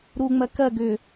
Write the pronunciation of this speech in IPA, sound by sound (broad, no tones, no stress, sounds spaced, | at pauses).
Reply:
ɾ u ŋ͡m ɜ k ɜ ɡ ʏ